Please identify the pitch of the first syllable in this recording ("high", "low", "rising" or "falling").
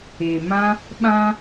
low